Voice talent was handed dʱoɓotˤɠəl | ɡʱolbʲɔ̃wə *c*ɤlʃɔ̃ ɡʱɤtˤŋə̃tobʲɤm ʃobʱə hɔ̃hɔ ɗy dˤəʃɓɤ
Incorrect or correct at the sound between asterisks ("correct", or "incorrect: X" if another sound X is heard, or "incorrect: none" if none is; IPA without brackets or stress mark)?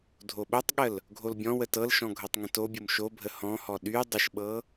incorrect: t